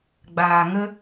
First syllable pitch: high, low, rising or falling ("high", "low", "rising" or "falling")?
low